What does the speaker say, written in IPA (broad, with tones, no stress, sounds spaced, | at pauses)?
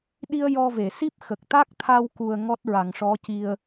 ɗ i˧ ə̯ j ɔ˧ v e˨˩˨ s i˦˥ p̚ x ə˨˩ k̚ t̪ a˦˥ k̚ t̪ʰ a˧ w k u˨˩ ə̯ ŋ ɔ˦˥ t̚ ɹ a˨˩˨ ŋ ʂ ɔ˧˥ c i˧ ə̯